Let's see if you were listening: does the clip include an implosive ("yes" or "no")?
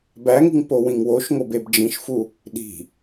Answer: yes